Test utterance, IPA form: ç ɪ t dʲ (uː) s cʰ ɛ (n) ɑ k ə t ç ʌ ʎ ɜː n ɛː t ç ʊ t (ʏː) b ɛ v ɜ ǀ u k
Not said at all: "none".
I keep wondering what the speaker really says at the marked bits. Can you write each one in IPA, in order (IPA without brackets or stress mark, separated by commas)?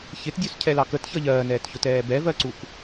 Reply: u, l, ɛː